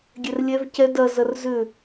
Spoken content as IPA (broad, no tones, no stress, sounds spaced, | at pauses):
ɡʲ ɛ r lʲ ɛ v c ɛ d ɐ z ɐ r z ʏ